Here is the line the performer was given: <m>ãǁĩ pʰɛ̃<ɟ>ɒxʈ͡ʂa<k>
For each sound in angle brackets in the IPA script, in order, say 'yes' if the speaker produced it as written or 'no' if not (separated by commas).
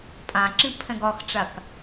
no, no, yes